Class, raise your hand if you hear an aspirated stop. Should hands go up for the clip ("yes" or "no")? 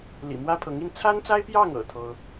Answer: yes